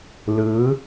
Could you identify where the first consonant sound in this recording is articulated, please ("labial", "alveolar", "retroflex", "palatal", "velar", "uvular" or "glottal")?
alveolar